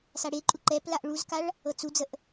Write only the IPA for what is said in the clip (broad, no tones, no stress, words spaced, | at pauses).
saɽeǃʼu ǃɛplaʔ ɭuzkaɭ | ɤt͡sud͡zəʔ